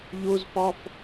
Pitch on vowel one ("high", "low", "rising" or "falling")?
high